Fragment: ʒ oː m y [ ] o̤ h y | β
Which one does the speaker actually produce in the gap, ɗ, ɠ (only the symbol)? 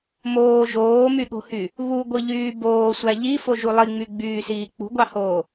ɠ